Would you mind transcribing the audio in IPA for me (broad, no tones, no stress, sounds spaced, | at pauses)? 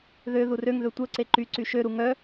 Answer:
ð ø ð u r ø ŋ ð ø tʷ œ ǀ e ǃ y ǀ y ʃ ø ɾ u ŋ œ